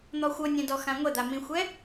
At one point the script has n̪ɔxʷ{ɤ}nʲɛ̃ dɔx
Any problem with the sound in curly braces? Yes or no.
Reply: no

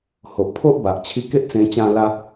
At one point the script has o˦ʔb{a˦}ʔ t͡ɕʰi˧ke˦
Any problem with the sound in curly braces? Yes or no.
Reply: yes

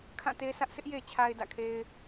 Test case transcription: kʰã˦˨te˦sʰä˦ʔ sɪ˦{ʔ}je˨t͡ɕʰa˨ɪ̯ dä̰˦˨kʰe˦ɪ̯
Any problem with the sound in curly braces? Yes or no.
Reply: no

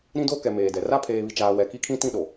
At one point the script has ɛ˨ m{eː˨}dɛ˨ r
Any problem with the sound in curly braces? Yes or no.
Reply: no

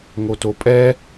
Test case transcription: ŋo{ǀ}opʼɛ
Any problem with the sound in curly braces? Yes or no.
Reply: yes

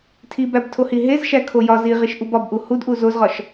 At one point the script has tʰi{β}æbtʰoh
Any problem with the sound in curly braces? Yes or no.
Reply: yes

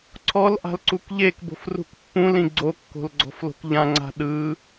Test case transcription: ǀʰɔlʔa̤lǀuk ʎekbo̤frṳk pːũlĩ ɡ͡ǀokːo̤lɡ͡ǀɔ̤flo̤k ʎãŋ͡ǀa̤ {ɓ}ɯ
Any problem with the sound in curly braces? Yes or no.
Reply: yes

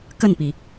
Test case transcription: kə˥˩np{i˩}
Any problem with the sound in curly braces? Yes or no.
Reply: no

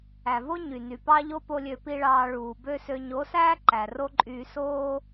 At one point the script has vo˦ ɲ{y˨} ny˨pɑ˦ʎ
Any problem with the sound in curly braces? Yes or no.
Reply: no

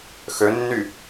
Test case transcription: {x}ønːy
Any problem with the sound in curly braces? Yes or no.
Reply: no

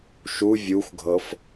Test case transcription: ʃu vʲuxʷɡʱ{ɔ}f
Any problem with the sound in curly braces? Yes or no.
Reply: yes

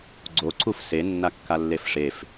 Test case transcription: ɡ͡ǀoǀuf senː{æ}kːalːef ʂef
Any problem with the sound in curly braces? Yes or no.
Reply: yes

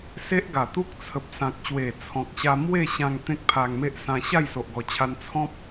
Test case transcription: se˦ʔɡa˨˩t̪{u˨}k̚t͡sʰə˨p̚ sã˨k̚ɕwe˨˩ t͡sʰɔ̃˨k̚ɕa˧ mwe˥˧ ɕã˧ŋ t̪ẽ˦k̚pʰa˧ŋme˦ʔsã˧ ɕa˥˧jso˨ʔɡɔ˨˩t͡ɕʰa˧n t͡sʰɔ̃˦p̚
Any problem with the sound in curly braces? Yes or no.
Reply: yes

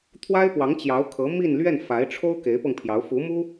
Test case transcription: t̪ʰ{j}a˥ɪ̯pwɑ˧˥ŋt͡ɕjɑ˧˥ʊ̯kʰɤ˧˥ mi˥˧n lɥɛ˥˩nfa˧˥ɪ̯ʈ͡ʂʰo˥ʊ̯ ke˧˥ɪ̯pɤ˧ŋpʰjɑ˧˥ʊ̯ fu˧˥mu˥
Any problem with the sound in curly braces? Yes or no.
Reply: yes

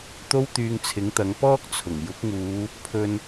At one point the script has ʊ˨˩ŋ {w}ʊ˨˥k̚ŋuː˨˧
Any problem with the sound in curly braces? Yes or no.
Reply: yes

